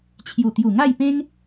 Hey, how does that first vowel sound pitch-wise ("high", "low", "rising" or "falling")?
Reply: low